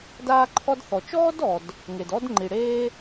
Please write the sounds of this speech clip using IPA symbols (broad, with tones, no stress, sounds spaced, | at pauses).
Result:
d aː˥ ǃʰ ɔ˥ d θ ɔ˩ t͡ʃ ɔː˥ d ɔ˩ d | ŋ e˩ d ɔ˥ d ŋ͡ǃ i˩ ɽ eː˥